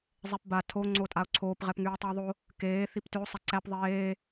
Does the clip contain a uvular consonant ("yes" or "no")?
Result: yes